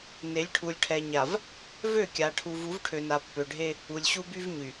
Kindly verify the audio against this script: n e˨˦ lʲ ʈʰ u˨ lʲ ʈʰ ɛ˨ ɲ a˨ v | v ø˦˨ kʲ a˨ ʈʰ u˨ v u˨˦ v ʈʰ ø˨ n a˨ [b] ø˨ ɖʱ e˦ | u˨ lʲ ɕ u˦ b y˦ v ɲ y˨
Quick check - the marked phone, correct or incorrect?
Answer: incorrect